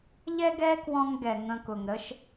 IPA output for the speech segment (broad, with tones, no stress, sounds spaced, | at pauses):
ʎ ɛ˦ ɡ ɛ˦ k w ɔ̃˧ ŋ ɡ ɛ˨ ŋ ə̃˧ k ʊ˨ ŋ ɾ ə˦ ʃ